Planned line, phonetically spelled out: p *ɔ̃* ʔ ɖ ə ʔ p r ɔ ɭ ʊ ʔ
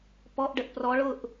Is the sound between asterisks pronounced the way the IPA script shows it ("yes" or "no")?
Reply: no